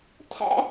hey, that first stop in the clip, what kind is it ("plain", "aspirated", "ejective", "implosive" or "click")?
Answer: aspirated